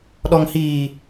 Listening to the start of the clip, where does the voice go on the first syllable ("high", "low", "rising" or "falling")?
low